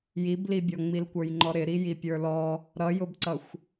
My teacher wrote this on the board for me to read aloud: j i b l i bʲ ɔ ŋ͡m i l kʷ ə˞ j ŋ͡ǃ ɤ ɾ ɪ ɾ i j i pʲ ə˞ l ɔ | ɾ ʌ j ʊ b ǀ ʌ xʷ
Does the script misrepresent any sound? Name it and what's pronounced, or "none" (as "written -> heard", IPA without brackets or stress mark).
ɤ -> ɔ